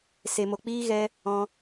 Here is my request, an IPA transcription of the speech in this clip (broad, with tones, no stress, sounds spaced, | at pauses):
s e˨ m o˨ k͡p iː˦ ɣ ɛ˧ | ɔ̃˧